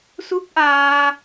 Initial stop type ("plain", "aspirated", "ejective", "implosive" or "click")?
plain